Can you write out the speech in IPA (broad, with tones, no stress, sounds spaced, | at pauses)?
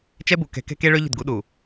t͡ʃ ɛ˦ b u˨ k ɛ̤˨ k ɛ̤˦ k e˦ ɭ ø˦ ʎ ə̤˦˨ d ɡ u˨˦ ɗ u˨